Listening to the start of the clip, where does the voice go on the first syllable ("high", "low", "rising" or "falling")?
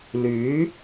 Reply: rising